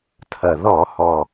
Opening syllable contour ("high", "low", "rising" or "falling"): low